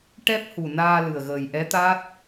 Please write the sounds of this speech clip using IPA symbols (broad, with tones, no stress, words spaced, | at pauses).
ʈɛ˦˥p̚ hu˨˩naː˧ lɨ˨˩ə̯ɣəː˨˩j ʔɛ˧˥t̪a˦˥t̚